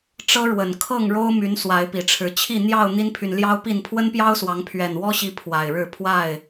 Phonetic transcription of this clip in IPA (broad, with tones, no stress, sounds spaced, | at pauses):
ʈ͡ʂ ɤ˦ ɻ w ə˨˩ n kʰ ɤ˥˨ ŋ ɻ o˦ ʊ̯ m y˨˦ n s w a˨˦ ɪ̯ p i˨˩ ʈ͡ʂʰ ɻ̩˨˦ t͡ɕʰ i˥˨ n̪ j ɑ˥˨ ʊ̯ n̪ i˦ n pʰ y˨ n l j ɑ˦ ʊ̯ p i˥˨ n pʰ w ə˦ n p j ɑ˦ ʊ̯ s w ɑ˨˦ ŋ pʰ ɥ ɛ˨˩ n w ɔ˦ ɕ i˨˦ pʰ w a˨˩ ɪ̯ ɻ ɻ̩˥˨ pʰ w a˥˨ ɪ̯